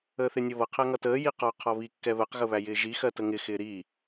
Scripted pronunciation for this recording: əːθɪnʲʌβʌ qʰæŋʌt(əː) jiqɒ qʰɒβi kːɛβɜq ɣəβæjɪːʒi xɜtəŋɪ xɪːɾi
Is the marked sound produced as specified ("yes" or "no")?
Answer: yes